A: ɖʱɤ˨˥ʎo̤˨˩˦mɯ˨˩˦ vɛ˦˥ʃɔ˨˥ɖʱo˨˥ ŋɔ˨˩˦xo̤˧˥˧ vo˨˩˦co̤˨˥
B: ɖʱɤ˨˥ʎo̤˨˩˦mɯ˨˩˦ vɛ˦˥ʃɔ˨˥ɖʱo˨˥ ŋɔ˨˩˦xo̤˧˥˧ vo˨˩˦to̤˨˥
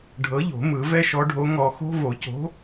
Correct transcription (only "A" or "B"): A